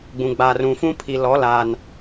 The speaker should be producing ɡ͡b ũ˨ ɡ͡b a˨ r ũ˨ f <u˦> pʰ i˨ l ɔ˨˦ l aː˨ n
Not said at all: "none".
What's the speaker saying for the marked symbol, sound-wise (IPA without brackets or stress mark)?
ũ˦